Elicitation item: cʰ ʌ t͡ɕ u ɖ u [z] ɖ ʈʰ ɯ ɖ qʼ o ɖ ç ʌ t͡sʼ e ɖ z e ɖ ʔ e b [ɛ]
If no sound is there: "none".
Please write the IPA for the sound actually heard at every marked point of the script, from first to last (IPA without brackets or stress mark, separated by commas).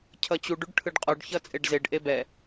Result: none, ɛ